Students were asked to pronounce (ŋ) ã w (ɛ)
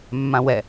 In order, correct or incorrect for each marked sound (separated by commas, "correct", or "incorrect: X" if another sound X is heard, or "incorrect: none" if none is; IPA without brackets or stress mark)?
incorrect: mː, correct